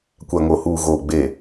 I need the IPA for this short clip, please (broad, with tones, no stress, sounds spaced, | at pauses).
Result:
kʷ a˨ ŋ o˨ h uː˨ ɣ oː˨ ɡ͡b eː˨